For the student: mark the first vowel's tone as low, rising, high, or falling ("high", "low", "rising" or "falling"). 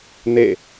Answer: falling